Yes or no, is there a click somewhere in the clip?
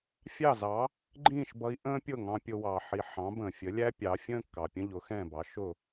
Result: yes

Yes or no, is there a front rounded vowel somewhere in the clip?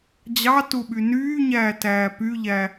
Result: yes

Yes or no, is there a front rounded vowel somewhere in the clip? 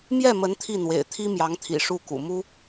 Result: no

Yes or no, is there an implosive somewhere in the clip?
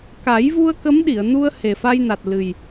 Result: yes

